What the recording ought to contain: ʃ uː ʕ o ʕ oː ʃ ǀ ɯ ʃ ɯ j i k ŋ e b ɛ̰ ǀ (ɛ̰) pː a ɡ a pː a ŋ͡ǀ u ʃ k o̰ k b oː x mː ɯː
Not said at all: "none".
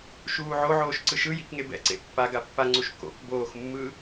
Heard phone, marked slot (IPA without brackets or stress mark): ḛ